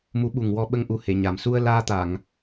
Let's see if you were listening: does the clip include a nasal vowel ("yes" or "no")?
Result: no